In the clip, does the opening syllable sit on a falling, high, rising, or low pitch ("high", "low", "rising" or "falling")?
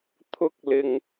high